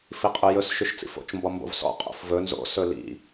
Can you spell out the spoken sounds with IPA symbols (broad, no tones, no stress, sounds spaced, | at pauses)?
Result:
f i qʼ ø j ɵ s ʃ y ʃ t͡s ḭ f o̰ t͡ʃ m b ɔ m b o̰ v s ɔ̰ qʼ o̰ f v ɵ n z o̰ s ɵ l ḭ